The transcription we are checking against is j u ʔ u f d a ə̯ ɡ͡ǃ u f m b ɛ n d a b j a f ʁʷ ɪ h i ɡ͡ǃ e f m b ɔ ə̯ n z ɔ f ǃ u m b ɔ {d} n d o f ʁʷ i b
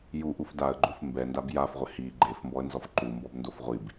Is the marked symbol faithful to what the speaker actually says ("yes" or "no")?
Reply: no